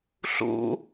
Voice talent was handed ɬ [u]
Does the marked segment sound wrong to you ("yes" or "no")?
yes